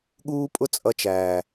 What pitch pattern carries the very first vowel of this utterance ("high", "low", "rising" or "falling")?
high